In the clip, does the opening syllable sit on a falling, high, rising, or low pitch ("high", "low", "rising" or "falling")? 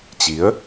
rising